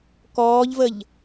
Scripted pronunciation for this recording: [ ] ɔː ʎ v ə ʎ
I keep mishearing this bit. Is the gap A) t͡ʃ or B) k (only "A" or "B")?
B